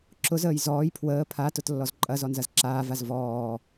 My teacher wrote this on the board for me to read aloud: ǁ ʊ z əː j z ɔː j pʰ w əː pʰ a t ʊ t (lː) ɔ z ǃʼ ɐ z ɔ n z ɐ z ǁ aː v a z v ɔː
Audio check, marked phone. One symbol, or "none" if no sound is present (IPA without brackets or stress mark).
lː